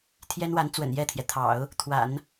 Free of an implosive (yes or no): yes